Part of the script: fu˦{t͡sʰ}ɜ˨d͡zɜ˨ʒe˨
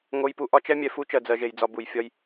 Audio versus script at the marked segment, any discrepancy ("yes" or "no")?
yes